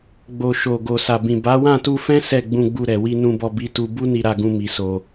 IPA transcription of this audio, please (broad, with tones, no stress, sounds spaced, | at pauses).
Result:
ɡ͡b o˨ ʃ o˨ ɡ o˨ s a˨ b ĩ˨ b a˨˦ w ã˦˨ t u˧ f ɛ̃˦ s ɛ˦˨ ɡ͡b ũ˧ ɡ͡b u˧ ɾ ɛ˨ w i˧ n ũ˧ b ɔ˧ b i˧ t u˧ b u˦ n i˧ ɾ a˧ ɡ ũ˧ m i˧ s o˧